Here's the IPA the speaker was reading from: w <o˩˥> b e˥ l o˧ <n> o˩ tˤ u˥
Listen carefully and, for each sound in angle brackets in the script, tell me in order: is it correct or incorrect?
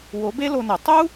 correct, correct

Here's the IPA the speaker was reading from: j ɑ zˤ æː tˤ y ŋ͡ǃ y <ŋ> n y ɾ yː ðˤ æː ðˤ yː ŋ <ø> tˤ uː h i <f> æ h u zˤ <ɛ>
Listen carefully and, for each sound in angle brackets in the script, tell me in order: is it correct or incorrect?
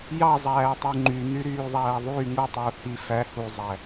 incorrect: none, incorrect: u, correct, incorrect: æ

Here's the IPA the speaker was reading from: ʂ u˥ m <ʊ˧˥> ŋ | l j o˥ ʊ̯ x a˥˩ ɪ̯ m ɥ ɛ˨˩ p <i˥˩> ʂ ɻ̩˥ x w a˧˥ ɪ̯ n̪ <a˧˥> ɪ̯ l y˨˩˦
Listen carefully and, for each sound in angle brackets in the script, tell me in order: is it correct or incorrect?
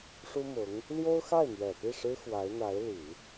correct, correct, correct

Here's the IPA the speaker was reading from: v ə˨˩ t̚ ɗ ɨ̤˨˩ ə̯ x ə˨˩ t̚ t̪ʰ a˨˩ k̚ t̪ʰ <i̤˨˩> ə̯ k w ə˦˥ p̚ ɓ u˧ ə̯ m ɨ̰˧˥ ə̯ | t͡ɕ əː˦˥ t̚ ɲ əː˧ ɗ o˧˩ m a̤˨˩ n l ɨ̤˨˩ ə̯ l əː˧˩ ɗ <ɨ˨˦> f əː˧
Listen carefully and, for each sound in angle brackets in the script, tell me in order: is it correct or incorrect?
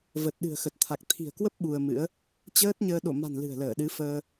correct, correct

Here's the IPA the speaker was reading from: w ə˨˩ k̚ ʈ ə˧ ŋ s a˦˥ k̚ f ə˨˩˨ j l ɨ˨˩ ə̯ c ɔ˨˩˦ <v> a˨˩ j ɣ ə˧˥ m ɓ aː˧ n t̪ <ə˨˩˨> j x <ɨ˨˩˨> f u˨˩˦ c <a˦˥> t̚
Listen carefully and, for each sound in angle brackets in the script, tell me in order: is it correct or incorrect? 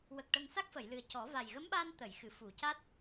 correct, correct, correct, correct

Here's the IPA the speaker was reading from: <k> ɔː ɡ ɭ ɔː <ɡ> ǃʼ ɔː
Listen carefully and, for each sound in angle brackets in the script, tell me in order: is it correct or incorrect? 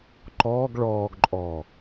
incorrect: ǃ, correct

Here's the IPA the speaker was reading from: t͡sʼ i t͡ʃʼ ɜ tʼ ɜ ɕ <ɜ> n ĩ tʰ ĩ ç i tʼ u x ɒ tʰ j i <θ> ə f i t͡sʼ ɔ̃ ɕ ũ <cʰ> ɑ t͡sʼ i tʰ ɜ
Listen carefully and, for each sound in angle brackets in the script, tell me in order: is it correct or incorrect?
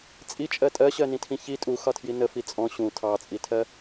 correct, incorrect: n, incorrect: tʰ

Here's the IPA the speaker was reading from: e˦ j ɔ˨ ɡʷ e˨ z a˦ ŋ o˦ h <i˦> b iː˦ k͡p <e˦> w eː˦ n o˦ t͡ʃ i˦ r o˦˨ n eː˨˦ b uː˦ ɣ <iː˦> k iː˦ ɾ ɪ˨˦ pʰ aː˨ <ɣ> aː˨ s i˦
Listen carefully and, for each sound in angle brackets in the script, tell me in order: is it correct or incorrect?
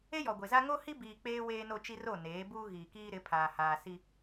correct, incorrect: eː˦, incorrect: iː˨, incorrect: h

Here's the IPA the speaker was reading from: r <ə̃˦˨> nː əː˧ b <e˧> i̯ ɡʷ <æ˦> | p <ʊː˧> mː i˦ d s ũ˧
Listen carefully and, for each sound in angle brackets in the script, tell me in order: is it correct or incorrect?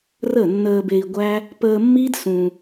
incorrect: ə˦˨, correct, correct, incorrect: əː˧

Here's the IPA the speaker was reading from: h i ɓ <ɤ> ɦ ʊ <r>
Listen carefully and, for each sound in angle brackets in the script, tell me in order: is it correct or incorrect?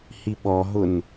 incorrect: ɔ, incorrect: n

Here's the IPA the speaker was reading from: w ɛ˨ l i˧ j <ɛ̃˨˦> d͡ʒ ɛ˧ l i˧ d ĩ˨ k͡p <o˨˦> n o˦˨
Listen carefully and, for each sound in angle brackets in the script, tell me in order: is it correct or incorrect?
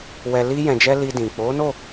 incorrect: ɛ̃˨, correct

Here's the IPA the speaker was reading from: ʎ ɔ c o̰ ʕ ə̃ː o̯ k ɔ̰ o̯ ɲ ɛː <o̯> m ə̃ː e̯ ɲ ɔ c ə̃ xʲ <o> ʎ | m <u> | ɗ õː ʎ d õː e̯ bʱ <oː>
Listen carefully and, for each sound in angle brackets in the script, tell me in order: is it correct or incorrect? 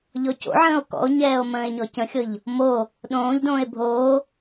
correct, incorrect: ɤ, incorrect: o, correct

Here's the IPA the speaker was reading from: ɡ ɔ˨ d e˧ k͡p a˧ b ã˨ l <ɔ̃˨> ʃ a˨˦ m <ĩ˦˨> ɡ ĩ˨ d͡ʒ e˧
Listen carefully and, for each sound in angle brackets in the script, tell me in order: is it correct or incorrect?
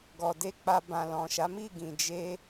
correct, incorrect: i˦˨

